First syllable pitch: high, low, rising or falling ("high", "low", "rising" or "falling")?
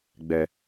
low